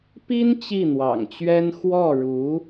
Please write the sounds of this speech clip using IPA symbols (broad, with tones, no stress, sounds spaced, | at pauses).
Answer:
p i˥ n t͡ɕ i˥˩ n̪ w ɑ̰˨˩ ŋ t͡ɕ ɥ ɛ˥ n x w ɔ˥˩ ɻ u˧˥